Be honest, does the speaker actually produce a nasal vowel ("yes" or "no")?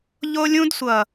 yes